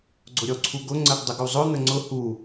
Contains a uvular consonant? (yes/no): no